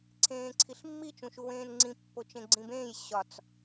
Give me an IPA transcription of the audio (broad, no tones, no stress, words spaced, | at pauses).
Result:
ǀʰẽːǀʰiɬmːi t͡ʃũʃuwẽːnŋ͡ǀĩ pːot͡ʃẽɡ͡ǀĩbẽːj ɕɒt͡s